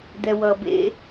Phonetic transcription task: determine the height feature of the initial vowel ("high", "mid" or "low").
mid